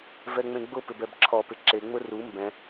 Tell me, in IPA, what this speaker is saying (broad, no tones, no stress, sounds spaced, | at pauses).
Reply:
v ɛ ŋ͡m ẽ ɡ͡b ʊ p ɪ b ɛ b ǁʰ ɔ p ɪ ǁ e ŋ͡m ʊ r u m b ɛ̃